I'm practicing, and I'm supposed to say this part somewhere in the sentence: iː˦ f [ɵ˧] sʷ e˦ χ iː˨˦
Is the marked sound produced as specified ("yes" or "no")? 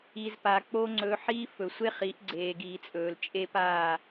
no